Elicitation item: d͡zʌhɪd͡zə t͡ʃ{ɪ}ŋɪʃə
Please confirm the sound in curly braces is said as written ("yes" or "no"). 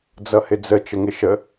no